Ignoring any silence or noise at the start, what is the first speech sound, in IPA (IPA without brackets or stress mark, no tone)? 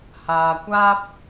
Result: h